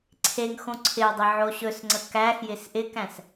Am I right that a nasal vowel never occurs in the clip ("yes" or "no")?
no